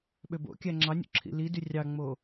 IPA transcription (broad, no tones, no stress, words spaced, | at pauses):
ɓøbo̰kʲæ ŋ͡ǁɑnʲṵ ǁʰḭlidy rʲɑŋ͡mo